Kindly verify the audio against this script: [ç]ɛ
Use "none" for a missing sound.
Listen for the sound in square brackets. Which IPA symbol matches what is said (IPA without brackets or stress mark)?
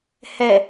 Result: h